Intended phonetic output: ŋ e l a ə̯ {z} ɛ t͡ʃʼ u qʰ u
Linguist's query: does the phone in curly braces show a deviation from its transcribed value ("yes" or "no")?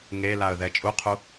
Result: yes